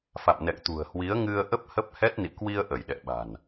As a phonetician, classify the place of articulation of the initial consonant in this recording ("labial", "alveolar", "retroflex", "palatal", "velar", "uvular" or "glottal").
labial